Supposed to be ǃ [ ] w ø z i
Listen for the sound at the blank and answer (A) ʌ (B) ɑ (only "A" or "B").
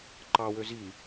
B